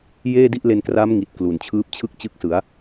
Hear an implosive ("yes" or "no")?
no